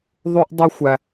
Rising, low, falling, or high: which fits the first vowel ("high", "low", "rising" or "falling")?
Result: high